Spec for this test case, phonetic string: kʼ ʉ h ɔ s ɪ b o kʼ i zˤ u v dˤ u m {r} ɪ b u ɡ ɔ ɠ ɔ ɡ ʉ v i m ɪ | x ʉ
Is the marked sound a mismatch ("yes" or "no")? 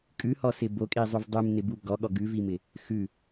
yes